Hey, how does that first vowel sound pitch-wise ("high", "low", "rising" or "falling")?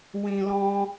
low